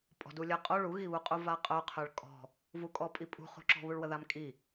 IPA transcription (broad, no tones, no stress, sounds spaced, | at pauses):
pʼ ɔ̤ d u lʲ ə qʼ o ɭ u ɣ i β u qʼ u v a qʼ œ qʰ œ ɭ kʼ ɔ̤ | v u kʼ ɔ pʼ i pʼ ṳ χ ṳ ǁ ɔ̤ β u ɭ w ə ð a m kʼ i